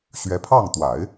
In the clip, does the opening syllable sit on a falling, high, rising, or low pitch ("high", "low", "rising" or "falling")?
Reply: rising